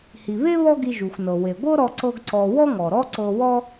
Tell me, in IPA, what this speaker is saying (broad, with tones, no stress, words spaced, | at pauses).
hi˩βe˥ βɔ˥ɡi˧ ʒu˩xʷnɤ˩ we˩ɡʷɤ˥ɾɔ˧ ǀɤ˥ɡǀɔ˧ wɔ˥ŋɔ˩ɾɔ˥ ǀɤ˧wɔ˥